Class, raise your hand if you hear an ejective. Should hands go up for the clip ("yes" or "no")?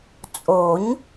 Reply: yes